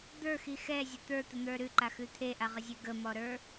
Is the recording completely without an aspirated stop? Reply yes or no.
no